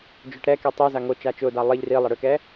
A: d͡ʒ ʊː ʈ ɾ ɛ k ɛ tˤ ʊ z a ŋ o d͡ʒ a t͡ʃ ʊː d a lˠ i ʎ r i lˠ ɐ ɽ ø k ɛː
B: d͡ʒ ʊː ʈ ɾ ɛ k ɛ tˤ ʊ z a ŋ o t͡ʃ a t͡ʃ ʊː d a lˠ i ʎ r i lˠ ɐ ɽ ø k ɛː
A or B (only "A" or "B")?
B